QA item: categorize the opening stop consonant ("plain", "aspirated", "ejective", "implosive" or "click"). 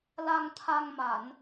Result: aspirated